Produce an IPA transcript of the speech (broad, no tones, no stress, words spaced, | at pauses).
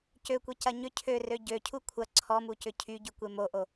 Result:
cøkʷecɐ ɲʏ cʰørø ɟøcʰu kʷʰɐ ǀʰɔmucʏ cʰyɟykʷe moʔo